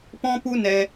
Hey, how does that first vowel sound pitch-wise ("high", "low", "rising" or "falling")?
high